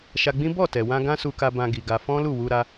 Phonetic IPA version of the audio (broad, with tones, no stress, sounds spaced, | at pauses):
ʃ a˧ ɡ͡b ĩ˦ b ɔ˦˨ t ɛ˨ w ã˧ ɡ ã˦ s u˧ k a˧ b ã˧ ɡ i˨ ɡ a˧ f ɔ̃˦ l u˦˨ w u˧ ɾ a˦